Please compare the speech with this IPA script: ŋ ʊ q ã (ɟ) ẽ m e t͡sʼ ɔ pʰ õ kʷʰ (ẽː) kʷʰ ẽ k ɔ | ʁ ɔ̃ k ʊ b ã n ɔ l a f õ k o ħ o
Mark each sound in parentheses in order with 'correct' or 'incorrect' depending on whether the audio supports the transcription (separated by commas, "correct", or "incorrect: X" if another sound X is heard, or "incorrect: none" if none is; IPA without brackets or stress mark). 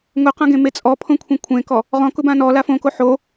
incorrect: ɡ, incorrect: ẽ